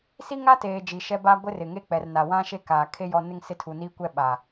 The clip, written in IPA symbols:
s i˦ ŋ a˦ t eː˨ d͡ʒ i˨ ʃ ɛ˦ b a˦ ɡʷ ɪ˦ r ɪ˨ ŋ e˦ k͡p ɛ˨ r n a˨ w ã˦ ʃ e˦ k aː˨ kʰ e˦ j ɔ˦ n ɪ˦ ŋ s ɪ˦ tʰ u˨ n iː˦ kʷ ɛ˦ ɓ a˨

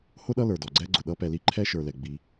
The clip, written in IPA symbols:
h ʊ˥ ɗ ʌ˦ l ə˞˩ d ɔ˩ ɡ͡ǀ ɛ˦ ɡ͡ǀ ʊ˩ ɗ ʌ˦ p ɛ˨ l i˦ ǃʰ ɛ˥ ʃ ə˞˨ l ɛ˩ ɡ͡b i˨

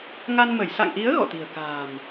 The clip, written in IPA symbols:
ŋ a˧ n m ə˧˩ j s a̰˧˨ ŋ ʔ i˨˦ ə̯ ɣ ɔ̰˧˨ t̪ i̤˨˩ ə̯ k a̤ː˨˩ m

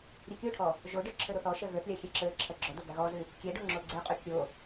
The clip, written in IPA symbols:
ɾʲ ɛ kʲ o ʈʰ ɔ | ʒ o ɖ ə˞ ǁʰ ə˞ ɾ o θ ɔ ʃ ɜ ɣ ə˞ θ lʲ a xʲ ɛ ǁ ə˞ ǁʰ ɜ ɡ͡ǁ ɔ d o ɡ a ɣ ɔ z ɨ | kʲ ɛ ɖ o ŋ͡ǁ o ɡ͡ǀ ɛ qʼ o kʲ o

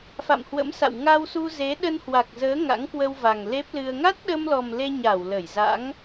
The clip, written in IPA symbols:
f a̰˧˨ m h w ə̰˧˥ m s a̰˧˨ w ŋ a˧ w s u˧ z e˨˦ ɗ ə˧ n h w a˨˩ k̚ z əː˨˦ ŋ a̰˧˥ ŋ k w ə˧ w v a˨˩ ŋ l e˦˥ p̚ l ɨ˧ ə̯ ŋ a˦˥ t̚ ɗ ə˧ m l ɔ˨˩ m l e˧ ɲ a˧˩ w l ə˧˩ j z a̰˧˥ ŋ

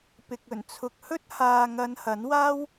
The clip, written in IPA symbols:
p ɪ˨ k̚ ɵ˨˩ n t͡sʰ ʊ˨ k̚ h ɵ˥ t̚ h aː˨ ŋ ɐ˨˧ n h ɐ˨˥ n w aː˥ w

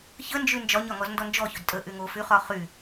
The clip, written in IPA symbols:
ç ə n d͡ʒ y n d͡ʒ ɒ ɲ ɒ ŋ ɔ z n d ɔ n d͡ʒ ɔ ç ɵ d tʼ ə ʔ y ŋ o f y χ ɒ χ y

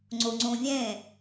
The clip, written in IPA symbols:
ŋ͡ǀ u ŋ͡ǀ ũ vʲ ẽ

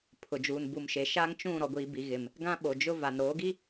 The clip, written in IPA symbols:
pʰ ʊ˨ d͡ʒ uː˨ n b u˨ m ʃ e˨ ʃ a˦ ŋ t͡ʃ ũ˦˨ ɾ ɔ˨ ɡʷ iː˨ b i˨ ɣ ɪ˨ m | ɡ ã˦ ɓ o˨ d͡ʒ ʊ˦ v a˨ n ɾ oː˨˦ ɡ i˦

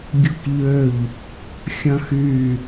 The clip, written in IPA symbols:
ɡʲ ʊ k ʎ ø ʎ | xʲ ɐ̃ x y

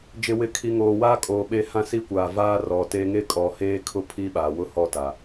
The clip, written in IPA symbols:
d͡ʒ ɪ˨ w ɪ˨ kʰ i˨ ŋ oː˨ w aː˦ kʼ oː˨ ɓ e˦ h ã˦ s i˦ kʷ aː˨ v aː˦ r ɔ˨ t e˦ ŋ e˦ kʼ ɔ˨ h eː˦ kʰ ʊ˦ pʰ i˦ ɓ a˨ w ʊ˦ h ɔ˦˨ t a˨

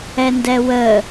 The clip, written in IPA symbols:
ɛ n d ɛ w ə

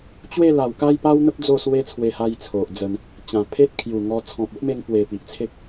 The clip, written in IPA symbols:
t͡ɕ w e˥˧ l a˨˩ w k a˥˧ j p a˦ w n̪ ə˦ p̚ d͡z o˥˧ s w e˦ t͡sʰ w e˧ h a˧ j t͡sʰ o˨ ʔ d͡z ə˧ n | t͡ɕ ã˨˩ pʰ e˦ t̚ kʰ j u˨˩ ŋ ɔ˧ t͡sʰ ɔ̃˨ p̚ o˦ ʔ m e˧ ŋ p w e˨˩ p i˨ ʔ t͡sʰ e˦ k̚

